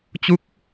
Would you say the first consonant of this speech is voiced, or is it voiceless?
voiceless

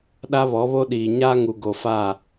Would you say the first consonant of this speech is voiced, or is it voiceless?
voiced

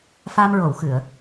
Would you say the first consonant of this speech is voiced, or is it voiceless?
voiceless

